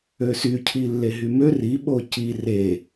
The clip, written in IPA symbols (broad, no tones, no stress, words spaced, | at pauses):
øsy cʰilːeɦymø ri ɓoci re